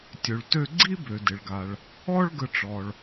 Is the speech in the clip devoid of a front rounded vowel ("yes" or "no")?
no